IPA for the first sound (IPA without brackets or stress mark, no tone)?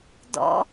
d